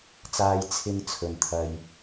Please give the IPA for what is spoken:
t͡saː˧j t͡sʰɪ˥ŋt͡sʰɵ˨nt̪ʰɐ˧j

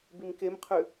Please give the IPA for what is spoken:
bimkemqʰʉ

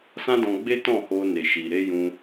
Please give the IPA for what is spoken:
sã˦dɔ̃˧ɡ͡be˦tɔ̃˦˨ ho˧ne˨ʃi˨ ɾe˧ jũ˧

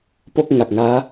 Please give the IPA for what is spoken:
po˥˩k̚ŋa˨˩k̚ ŋaː˦˥

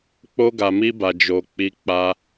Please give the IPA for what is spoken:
k͡po˧ɡa˨ mi˧ba˨ d͡ʒo˨ k͡pi˧k͡pa˧

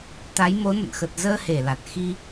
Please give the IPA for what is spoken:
t̪a˨˦jmo˨˦nə̰˧˨n xə˨˩t̚zəː˧he˧˩ la˨˩t̚xi˧

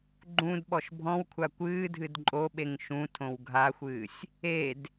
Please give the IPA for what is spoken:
ɡ͡ǃũd ɓɔʃbʱɔ̃wkʷʰa kʷɨːdʱɨd ǃʼoɓeŋ ʃũtʰõw ɡʱaxʷɨːsʲ | ed

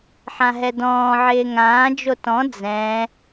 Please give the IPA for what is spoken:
ħãɦɛdɔ̃ː ʕɪːŋãː d͡ʒotɔ̃ d͡zɛ̃

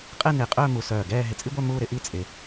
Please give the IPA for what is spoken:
qʼɛ˥˧nɪː˧˩qʼœː˥˧ mu˧sœː˧˩ɡɛː˥˧ ɦɪ˧˩t͡sʼi˥ɡʷœ˥˧ muː˥˧ɾɪ˥ʔi˥˧ t͡sʼɪ˧

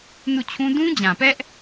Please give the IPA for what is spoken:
nu˦˨t͡ɕʰũ˦ dũ˦d͡ʑã˨pɛ˦ʔ

